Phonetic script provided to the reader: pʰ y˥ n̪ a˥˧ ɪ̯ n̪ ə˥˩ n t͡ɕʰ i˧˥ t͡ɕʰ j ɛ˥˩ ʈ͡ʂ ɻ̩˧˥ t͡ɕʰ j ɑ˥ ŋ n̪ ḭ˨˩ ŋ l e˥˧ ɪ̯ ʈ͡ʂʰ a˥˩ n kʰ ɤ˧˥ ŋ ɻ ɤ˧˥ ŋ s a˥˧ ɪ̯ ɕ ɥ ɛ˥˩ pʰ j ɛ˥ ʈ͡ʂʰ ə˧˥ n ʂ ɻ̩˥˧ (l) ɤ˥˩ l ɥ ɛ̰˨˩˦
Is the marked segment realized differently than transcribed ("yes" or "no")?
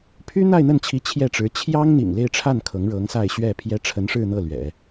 yes